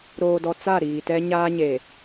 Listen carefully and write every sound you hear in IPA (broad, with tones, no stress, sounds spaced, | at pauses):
ɾ oː˨ d ɔ˨ t͡s a˦˨ ɾ iː˨ t ɛ˦ ɲ aː˦ ɲ e˨